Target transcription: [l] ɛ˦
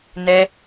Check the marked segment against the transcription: incorrect: n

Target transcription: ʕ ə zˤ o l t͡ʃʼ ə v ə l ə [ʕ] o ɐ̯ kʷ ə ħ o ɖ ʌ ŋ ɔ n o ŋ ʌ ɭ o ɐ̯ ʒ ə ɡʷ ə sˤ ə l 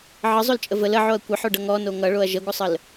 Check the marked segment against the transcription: correct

